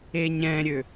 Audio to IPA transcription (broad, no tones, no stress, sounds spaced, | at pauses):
e ɲ ɛ̃ ɾʲ ø